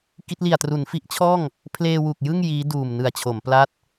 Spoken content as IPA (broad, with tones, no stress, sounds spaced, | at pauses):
k i˦˥ t̚ l i˨˩ a̯ t r u˩˦ n f i˦˥ ʔ t͡ɕʰ ɔː˥˩ ŋ | pʰ l eː˧ w u˨˩ k̚ j ɯ˥˩ ŋ j iː˦˥ d uː˨˩ m n ɯ˨˩ a̯ t͡ɕʰ o˩˦ m p l a˦˥ t̚